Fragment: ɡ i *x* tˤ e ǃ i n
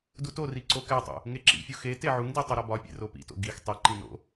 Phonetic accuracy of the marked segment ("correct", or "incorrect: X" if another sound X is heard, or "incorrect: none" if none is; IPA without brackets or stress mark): correct